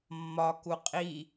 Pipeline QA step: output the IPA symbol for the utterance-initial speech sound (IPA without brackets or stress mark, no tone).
mː